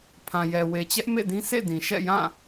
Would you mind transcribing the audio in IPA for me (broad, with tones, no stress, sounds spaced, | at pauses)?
pʰ ã˨ j ɛ˨ w e˨ t͡ɕ ɛ˦ ʔ m ḛ˦˨ d ĩ˦ sʰ ḛ˦˨ d ĩ˨ ʃ ɛ̰˦˨ j ã˦˨